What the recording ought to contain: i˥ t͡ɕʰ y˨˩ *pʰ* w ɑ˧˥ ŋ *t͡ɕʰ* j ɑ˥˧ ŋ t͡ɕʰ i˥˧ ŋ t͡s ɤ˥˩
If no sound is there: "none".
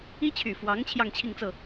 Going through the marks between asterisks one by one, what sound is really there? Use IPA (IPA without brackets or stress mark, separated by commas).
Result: f, t͡ɕʰ